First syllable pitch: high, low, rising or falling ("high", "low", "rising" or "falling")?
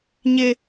high